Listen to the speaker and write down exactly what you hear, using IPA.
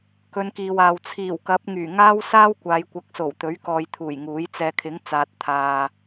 kɵ˨˧nkiː˨waː˨w t͡sʰiː˨˩wkɐ˨˥p̚ ŋyː˨˩ŋaː˥wsaː˥wkʷaː˨˧j kʷɐ˨˥k̚so˨˩w t̪ɵ˨˥ɥkɔː˨jt̪ʰuː˨˩j ŋuː˨˥jt͡sɛː˧ kʰɪ˨˥ŋ t͡saː˨t̚t̪ʰaː˨

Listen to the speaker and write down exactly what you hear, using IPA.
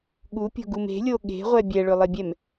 ɠupʲo̤ɡum e̤lʲo ɠe̤ʁʷɛ bʲɛɭʏlˠebʲɛm

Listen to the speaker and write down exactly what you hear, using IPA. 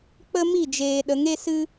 k͡pə˦ mi˦˨d͡ʒeː˨ ɗə˨˦ŋe˦ sɨ˦

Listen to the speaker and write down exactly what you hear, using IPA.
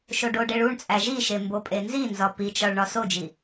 ʃoɖoɖeɭ uɳt͡sʼæ ʒiʃe mbopʼenzinzɒ pit͡ʃɒɭ ɳɒsod͡ʒi

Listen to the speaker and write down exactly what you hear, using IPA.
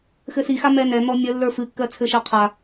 xɘsixa mɛnɛn̪ɔ mʲəlːə˞ fɨkːɜ t͡sʰɘʃɜqʰa

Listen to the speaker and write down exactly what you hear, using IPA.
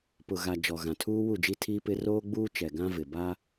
pʊ˨ɣa˨ d͡ʒɔ˨ɣã˨tʰuː˦ wu˦˨d͡ʒi˦tʰiː˦pɪ˦ roː˦ɡ͡buː˦ t͡ʃɛ˨ ɡã˦ vɪ˨ ba˦

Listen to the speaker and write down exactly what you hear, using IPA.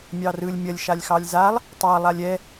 mʲɑrɯlʲ mʲɐlʲ ʃalʲxɑlʲzalˠ | tˤɑlˠalʲ ɛ

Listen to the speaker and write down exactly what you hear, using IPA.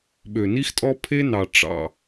ɓø˨ni˦xtʼɔ˦ pʰe˦nɑ˨ ʈ͡ʂɑ̰˨

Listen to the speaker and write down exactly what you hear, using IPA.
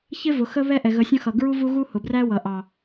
çɪ˦vʊ˨ xə˦βɛ˦ ʔɛ˨ɣə˨˦sʲə̃˦xʌ˨ ɡɹu˦vu˦ɣu˦ hʊ˨bræ˦wʌ˨ ʔɑ˨

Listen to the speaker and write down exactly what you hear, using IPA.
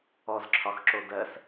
ɔzǁʰɒxǁo dɜs

